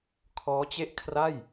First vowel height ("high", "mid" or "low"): mid